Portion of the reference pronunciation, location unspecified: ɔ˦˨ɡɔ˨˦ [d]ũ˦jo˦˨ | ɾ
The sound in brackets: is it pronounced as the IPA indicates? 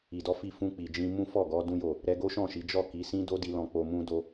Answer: yes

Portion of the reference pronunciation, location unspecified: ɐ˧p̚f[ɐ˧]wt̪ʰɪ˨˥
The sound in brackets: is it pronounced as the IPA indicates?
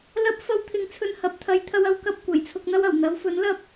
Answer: yes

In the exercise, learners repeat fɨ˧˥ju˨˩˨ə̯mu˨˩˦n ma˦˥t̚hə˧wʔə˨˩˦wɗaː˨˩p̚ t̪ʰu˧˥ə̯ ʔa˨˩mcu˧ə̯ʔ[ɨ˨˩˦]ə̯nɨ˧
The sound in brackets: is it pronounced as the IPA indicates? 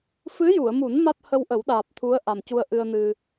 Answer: no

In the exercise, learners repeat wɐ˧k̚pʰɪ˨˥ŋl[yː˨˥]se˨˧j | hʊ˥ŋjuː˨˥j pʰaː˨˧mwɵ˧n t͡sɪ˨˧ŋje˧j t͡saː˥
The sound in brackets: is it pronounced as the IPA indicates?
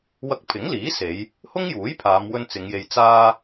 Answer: no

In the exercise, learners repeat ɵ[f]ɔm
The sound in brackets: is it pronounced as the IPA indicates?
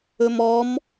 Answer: no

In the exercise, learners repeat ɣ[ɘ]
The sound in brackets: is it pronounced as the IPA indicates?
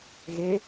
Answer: no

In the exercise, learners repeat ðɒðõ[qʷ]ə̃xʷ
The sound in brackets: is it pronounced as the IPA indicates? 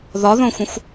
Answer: no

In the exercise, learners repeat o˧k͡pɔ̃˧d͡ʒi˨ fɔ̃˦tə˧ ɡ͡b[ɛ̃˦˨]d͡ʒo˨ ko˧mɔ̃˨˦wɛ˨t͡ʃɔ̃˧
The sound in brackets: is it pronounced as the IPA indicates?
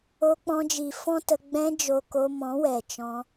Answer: no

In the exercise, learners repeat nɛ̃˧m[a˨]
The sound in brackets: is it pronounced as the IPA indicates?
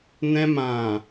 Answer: no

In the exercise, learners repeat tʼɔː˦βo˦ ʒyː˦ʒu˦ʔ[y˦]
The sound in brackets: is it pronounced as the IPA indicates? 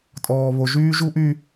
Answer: yes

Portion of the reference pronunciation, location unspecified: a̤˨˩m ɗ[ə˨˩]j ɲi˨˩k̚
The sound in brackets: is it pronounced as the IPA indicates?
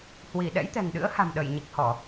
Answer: no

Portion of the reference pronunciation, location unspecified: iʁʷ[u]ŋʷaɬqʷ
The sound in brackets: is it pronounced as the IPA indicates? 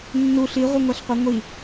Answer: no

